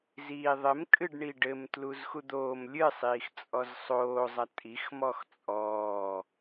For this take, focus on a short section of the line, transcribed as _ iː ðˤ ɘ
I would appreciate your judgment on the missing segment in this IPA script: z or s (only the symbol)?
z